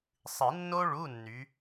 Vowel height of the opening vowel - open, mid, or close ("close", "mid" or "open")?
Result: close